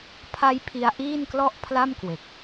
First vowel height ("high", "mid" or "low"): low